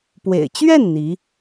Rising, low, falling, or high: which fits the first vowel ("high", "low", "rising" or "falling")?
low